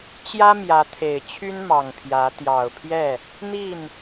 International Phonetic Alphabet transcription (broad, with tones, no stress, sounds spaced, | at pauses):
t͡ɕ j ä˦ m j ä˨˦ t̪ʰ e˨˩ ɪ̯ t͡ɕʰ y˦ n m ɑ˨˩ ŋ pʰ j ä˨˦ t̪ j ɑ˨˩ ʊ̯ pʰ j ɛ˥˨ | n̪ i˥˨ n